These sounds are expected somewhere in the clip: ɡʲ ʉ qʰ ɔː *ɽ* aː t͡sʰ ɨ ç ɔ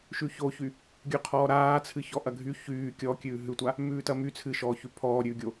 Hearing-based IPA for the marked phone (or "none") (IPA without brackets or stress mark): ɾ